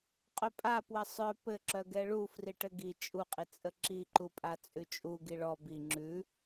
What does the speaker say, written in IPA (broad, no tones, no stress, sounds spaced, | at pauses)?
qʼ œ pʼ a p w ə sˤ œ p ɘ ǁ œ ɡ ɛ ɭ u f r i ʈ ɘ ɡ i t͡ʃʼ u qʼ i t͡sʼ ə ǁ i ǃ u pʼ a t͡sʼ ʉ t͡ʃʼ u ɡ i ɭ ɔ b i ŋ͡ǁ ʉ